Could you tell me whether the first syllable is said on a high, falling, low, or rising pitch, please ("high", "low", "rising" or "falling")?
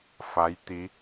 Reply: rising